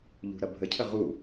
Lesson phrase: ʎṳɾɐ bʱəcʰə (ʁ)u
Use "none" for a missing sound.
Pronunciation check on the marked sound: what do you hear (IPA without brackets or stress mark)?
ʁ